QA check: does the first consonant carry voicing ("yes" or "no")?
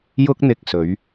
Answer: yes